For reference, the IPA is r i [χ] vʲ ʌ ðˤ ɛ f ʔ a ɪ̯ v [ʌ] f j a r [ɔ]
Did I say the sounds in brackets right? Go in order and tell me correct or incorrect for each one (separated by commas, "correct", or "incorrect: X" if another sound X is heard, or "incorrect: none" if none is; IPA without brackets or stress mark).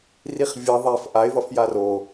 correct, correct, incorrect: o